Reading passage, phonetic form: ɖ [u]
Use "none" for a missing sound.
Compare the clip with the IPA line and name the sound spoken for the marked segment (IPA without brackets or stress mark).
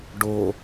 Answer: o